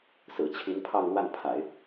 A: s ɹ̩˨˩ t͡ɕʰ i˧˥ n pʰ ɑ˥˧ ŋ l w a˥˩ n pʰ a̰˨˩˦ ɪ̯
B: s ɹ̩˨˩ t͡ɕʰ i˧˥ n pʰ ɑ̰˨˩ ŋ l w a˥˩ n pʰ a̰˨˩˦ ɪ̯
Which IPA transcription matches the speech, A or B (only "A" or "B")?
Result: A